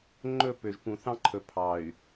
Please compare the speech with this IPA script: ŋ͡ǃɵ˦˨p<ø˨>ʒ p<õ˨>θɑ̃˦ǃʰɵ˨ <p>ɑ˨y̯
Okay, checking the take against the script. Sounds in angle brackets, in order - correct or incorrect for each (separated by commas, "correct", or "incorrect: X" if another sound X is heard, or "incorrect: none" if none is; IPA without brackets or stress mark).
correct, incorrect: ũ˨, incorrect: pʰ